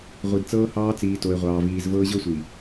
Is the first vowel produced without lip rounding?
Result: yes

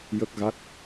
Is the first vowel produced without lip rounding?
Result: yes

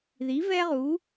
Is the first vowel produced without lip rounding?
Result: yes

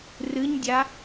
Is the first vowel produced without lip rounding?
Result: yes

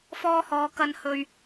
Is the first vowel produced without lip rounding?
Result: no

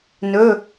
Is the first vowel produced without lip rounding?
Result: no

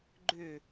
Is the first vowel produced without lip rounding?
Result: no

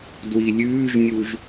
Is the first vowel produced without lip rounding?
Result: yes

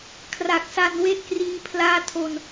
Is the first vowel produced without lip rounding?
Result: yes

